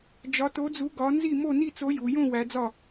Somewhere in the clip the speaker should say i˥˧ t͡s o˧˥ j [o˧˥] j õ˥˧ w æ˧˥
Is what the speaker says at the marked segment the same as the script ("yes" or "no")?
no